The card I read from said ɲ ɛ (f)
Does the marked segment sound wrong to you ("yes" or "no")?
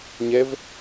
yes